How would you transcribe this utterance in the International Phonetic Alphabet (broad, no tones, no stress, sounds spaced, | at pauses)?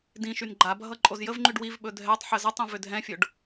d ĩ ʃ y n ɡ͡ǃ a bʱ ʌ ǃʼ o z j ə v ŋ͡ǃ y ɖ w i v ɓ ɵ dʱ ɛ tˤ ħ ə z ʌ tˤ ĩ v ʏ dʱ ɛ̃ fʲ o ɖ